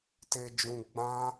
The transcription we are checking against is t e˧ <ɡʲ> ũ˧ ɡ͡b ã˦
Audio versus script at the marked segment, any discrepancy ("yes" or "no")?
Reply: yes